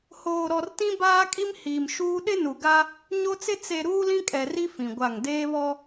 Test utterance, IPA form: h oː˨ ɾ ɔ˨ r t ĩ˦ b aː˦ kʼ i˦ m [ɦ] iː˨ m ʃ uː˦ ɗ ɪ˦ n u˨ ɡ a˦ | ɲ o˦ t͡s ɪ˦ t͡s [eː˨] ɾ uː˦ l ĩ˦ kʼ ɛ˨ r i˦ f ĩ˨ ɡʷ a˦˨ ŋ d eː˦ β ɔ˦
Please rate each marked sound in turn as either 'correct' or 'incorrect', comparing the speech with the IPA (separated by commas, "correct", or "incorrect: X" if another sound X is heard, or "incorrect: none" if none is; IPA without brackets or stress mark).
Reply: incorrect: h, incorrect: e˨